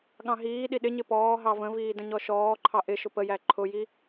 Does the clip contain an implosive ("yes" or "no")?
yes